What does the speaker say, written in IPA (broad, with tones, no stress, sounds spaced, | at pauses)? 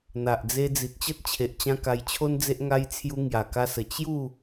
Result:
n̪ a˨ ʔ d͡z e˧ d͡z i˨ t̚ t͡ɕ ə˦ t̚ t͡ɕʰ e˨ ʔ t͡ɕ ã˧ k a˧ j t͡ɕʰ o˦ n d͡z e˦ ʔ ŋ a˧ j t͡sʰ j u˧ ŋ j a˨˩ k a˧ s ə˨˩ t͡ɕ j u˥˧